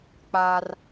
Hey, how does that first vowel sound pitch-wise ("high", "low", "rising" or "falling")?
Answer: high